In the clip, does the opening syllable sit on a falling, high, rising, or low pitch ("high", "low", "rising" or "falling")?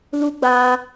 high